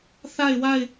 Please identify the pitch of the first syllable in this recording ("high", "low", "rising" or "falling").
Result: falling